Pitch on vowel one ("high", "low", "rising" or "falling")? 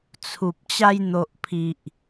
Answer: low